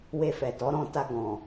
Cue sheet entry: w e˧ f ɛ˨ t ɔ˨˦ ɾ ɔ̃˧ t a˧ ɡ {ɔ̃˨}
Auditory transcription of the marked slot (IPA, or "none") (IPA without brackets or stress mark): ɔ̃˨